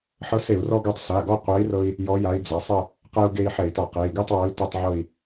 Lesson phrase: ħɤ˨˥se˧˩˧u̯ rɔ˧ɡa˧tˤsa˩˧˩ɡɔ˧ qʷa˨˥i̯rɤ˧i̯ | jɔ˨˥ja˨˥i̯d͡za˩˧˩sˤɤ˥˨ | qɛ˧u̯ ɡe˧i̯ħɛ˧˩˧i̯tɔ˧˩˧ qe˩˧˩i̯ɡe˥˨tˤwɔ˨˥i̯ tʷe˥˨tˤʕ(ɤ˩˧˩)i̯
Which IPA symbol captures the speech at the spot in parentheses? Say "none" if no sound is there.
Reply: ɤ˥˨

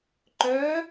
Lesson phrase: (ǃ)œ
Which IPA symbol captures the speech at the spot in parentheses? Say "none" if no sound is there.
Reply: ǃ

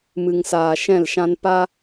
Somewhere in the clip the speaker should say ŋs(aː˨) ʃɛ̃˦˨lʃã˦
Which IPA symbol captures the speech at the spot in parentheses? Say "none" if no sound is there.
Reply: aː˨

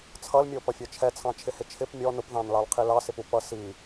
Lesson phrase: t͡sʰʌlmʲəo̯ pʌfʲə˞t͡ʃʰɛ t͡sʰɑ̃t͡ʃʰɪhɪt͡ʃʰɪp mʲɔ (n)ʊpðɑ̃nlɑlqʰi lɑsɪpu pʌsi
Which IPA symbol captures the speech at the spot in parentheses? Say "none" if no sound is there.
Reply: n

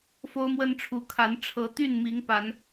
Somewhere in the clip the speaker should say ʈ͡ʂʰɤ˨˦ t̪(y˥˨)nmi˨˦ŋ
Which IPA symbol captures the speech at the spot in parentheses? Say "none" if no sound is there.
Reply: y˥˨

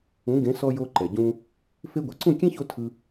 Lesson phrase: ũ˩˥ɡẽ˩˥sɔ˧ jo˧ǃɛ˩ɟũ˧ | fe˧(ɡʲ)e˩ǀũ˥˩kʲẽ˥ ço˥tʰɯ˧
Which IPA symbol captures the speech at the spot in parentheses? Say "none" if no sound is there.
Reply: ɡʷ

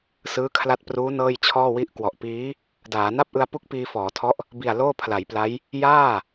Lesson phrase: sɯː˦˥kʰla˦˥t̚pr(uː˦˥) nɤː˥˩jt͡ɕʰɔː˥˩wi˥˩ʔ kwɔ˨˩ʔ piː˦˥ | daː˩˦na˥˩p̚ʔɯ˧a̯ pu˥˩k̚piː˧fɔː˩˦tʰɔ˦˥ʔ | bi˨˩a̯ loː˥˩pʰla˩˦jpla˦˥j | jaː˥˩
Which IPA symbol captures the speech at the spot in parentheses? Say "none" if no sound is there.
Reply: uː˦˥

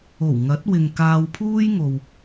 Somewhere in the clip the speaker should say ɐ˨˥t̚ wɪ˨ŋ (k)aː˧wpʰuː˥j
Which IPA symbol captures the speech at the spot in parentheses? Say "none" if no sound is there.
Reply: k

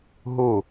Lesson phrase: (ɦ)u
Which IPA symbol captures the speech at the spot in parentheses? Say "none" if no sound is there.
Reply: ɦ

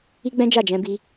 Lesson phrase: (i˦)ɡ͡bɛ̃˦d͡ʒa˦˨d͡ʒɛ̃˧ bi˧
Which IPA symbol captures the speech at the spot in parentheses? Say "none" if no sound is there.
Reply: i˦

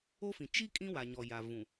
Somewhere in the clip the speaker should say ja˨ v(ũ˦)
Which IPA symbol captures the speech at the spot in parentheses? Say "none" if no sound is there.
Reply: ũ˨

